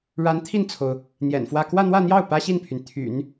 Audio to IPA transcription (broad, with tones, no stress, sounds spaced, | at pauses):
ɻ a˧˥ n t̪ʰ i˥˩ n t͡sʰ o˩ ʊ̯ | n̪ j ɛ̰˨˩ n f w ä˥˧ k w ä˥˧ n̪ w ä˥˧ n̪ j ɑ˥˩ ʊ̯ p ä˥ ɕ i˥˩ n pʰ y˩ n t̪ʰ y̰˨˩˦ n